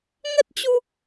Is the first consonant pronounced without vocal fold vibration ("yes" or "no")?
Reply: no